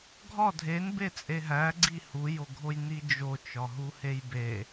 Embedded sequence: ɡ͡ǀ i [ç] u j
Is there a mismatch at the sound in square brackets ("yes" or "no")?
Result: yes